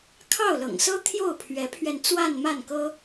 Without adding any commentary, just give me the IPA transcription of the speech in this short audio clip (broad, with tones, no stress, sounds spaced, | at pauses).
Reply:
kʰ ɑ˥˩ ʊ̯ l ɤ̰˨˩ ŋ s ɤ˥ t̪ʰ j o˥˩ ʊ̯ pʰ ɥ ɛ˧˥ pʰ ɥ ɛ˧ n t͡s w a˥˧ n m a˥˩ n k ɤ˥